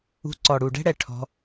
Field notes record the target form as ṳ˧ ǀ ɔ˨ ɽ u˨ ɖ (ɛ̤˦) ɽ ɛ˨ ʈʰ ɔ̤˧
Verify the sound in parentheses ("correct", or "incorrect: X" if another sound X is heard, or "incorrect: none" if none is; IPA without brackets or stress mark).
correct